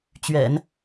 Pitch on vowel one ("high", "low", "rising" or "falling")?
low